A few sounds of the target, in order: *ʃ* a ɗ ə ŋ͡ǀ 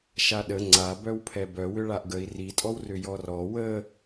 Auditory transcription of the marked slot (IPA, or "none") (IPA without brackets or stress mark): ʃ